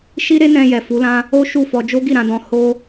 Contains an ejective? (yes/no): no